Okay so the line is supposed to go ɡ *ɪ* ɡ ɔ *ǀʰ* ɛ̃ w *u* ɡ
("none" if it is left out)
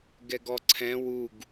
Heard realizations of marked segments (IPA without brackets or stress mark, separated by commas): ɛ, ǀʰ, u